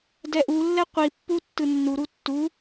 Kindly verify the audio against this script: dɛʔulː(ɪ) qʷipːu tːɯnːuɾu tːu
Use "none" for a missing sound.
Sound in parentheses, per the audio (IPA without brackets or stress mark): ɛ